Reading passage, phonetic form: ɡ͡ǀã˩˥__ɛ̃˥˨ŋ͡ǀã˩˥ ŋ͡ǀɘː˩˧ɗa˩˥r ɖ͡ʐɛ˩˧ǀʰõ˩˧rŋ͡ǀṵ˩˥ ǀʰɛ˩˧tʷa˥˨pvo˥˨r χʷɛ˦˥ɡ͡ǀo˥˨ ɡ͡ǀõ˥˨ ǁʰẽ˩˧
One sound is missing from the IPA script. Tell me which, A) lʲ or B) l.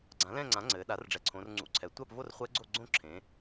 B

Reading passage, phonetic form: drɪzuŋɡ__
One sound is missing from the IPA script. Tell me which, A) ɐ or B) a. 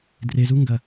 A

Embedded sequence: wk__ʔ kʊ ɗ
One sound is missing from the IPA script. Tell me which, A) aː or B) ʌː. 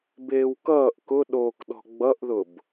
B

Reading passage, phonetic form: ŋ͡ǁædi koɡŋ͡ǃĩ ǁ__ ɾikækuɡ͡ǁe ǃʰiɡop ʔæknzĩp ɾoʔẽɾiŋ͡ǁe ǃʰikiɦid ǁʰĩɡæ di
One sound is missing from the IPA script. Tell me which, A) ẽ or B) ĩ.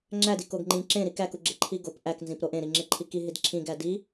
A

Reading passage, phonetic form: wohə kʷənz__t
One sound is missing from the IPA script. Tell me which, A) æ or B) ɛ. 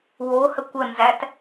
A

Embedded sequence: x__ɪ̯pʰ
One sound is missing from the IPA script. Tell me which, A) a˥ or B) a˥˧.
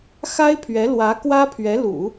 A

